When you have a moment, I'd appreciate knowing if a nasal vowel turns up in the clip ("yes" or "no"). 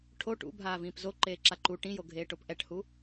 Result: yes